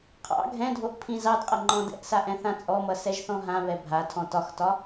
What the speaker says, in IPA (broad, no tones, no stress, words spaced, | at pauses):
qʰɑ̰ ɡʱɛ̃dʱoʔ pʰĩzɑdqʼʌ ŋ͡ǃɔ̃dɛ̰ʔsa ʔɛ̃θãt͡sʼɔmʌ sɛʒθɔ̃ɦãβɛ bʱatʰɔ̃ tɒxtɒ